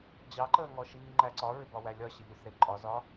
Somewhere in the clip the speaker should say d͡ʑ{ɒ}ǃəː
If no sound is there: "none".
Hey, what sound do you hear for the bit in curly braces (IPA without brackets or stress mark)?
ɑ